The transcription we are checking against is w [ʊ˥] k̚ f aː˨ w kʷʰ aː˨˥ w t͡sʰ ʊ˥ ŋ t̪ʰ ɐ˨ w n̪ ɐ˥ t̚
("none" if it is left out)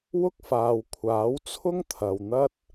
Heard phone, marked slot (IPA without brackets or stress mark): ʊ˥